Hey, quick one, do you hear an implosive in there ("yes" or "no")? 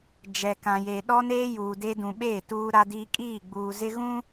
yes